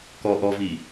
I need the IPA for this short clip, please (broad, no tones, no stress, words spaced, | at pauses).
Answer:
kɔ ʔɔvi